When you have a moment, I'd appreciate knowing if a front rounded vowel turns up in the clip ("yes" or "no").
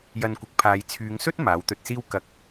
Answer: yes